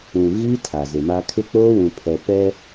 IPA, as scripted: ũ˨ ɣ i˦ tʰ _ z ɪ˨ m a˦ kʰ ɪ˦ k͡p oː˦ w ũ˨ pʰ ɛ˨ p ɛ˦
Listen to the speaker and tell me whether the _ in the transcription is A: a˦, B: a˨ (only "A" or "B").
B